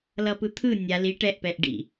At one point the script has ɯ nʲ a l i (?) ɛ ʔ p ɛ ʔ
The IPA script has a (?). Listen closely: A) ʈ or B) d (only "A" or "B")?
A